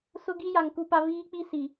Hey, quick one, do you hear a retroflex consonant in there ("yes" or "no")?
no